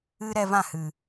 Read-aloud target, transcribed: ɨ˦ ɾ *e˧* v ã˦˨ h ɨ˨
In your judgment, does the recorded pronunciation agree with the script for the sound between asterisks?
no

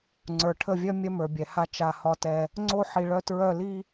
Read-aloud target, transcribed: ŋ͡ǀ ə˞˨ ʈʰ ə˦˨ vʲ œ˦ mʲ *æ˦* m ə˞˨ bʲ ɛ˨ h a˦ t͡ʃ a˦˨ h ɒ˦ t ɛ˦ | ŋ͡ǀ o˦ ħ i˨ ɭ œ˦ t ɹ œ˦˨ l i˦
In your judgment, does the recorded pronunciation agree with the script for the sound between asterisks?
no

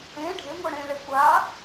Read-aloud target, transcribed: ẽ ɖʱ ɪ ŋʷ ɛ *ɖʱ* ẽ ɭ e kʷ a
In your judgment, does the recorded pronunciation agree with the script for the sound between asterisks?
no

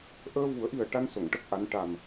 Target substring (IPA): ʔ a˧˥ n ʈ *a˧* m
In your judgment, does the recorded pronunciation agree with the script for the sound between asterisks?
no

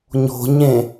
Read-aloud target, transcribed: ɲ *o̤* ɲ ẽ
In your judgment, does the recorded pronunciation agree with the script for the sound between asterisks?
yes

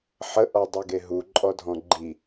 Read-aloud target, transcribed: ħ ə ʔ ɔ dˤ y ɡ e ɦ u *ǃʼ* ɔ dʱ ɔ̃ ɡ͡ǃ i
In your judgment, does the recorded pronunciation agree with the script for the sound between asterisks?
yes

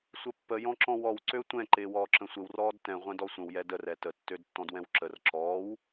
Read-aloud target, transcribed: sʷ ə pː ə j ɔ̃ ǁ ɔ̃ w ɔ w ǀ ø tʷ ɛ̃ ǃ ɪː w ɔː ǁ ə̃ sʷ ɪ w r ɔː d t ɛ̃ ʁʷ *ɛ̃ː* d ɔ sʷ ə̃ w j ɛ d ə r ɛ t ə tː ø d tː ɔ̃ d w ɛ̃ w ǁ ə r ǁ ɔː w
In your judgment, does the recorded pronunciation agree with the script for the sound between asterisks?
no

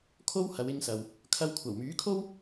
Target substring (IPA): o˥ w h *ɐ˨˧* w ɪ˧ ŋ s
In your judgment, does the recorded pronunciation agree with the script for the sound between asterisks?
yes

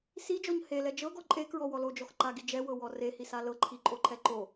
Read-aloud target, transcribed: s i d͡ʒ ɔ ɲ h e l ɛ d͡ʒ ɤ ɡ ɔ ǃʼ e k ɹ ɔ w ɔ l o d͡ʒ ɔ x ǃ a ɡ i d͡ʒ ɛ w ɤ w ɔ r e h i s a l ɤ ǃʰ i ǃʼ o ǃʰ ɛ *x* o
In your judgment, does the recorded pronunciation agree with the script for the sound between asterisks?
no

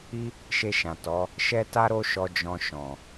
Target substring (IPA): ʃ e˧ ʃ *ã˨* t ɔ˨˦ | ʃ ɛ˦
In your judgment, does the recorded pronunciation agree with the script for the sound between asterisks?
yes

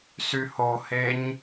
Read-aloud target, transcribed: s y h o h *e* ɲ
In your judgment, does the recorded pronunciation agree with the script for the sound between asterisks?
yes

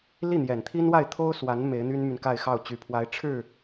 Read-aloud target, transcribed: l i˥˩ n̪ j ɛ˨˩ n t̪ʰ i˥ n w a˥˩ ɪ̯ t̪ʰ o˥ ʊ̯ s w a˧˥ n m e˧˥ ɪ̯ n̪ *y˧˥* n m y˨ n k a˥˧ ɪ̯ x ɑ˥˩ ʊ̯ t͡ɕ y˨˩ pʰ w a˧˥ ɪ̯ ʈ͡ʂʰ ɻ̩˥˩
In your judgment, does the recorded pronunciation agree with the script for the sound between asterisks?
no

